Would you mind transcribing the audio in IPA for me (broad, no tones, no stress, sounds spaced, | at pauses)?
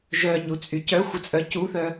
ʒ œ ɲ u t͡sʼ y c œ xʷ ə t͡sʼ œ c u θ œ